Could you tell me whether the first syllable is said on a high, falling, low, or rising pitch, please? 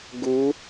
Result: rising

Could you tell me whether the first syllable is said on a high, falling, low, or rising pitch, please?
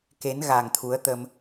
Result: rising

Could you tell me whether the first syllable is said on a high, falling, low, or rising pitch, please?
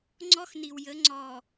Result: high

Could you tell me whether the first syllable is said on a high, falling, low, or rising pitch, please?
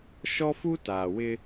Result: high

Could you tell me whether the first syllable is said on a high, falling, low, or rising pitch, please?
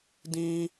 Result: high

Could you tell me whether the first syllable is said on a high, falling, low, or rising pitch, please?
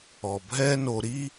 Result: low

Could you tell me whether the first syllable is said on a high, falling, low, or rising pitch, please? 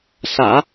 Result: low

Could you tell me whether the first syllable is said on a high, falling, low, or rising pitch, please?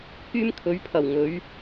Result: high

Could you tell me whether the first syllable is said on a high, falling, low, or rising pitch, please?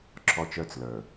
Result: high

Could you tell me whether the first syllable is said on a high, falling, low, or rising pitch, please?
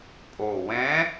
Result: low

